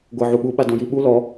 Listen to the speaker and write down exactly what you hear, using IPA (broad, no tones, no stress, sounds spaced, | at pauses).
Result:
ɡʷ ɤ ʕ u ɓ u ɓ a d ɔ̃ j i ɓ u l ɔ